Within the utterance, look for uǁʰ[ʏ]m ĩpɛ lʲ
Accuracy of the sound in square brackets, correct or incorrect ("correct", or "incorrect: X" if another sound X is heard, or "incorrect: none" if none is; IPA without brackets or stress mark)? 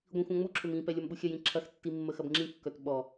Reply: correct